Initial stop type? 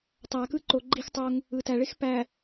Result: plain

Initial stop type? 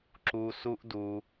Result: click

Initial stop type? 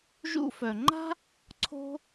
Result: click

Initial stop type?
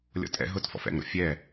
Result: ejective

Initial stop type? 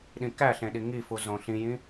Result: implosive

